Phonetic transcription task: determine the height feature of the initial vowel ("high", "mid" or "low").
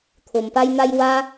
mid